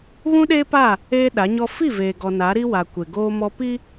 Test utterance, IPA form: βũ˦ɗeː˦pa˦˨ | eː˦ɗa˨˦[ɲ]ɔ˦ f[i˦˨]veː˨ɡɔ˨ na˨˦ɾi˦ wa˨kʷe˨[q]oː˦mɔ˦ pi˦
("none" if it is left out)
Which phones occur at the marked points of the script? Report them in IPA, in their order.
ɲ, i˦˨, ɡ

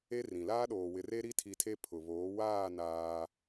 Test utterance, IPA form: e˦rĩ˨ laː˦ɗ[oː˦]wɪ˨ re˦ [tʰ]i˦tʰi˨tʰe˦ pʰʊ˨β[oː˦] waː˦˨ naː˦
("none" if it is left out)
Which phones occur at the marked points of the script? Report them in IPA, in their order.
oː˨, ɾ, oː˨˦

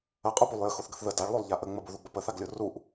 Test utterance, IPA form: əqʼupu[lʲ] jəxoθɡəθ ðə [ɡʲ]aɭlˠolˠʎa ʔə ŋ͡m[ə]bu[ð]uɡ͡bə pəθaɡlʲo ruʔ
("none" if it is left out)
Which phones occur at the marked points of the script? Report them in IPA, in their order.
lˠ, d, ə, ð

